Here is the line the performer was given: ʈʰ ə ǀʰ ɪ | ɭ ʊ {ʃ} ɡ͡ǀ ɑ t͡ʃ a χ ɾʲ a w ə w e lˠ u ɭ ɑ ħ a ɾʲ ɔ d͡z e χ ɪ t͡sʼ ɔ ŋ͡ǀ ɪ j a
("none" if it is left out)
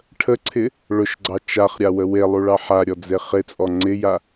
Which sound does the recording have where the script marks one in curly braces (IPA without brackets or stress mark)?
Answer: ʃ